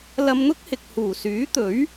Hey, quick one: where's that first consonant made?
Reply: tongue tip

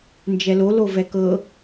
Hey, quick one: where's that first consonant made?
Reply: tongue tip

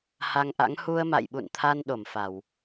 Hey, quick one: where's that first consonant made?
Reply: throat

